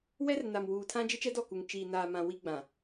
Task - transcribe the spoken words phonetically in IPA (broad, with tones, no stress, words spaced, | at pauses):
wɛ˦rna˨mwuː˨tʰã˦ d͡ʒɪ˦t͡ʃɛ˦dɔ˦˨ku˨ŋ t͡ʃiː˨naː˨mã˨ wi˦ɡ͡bã˨